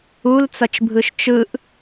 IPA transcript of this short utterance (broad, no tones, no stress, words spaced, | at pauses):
ult͡sʌt͡ʃbʱɯʃ t͡ʃɯʔ